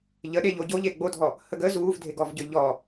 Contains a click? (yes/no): no